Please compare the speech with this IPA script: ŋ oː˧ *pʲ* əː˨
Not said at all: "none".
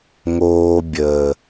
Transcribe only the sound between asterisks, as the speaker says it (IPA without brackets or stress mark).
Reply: bʲ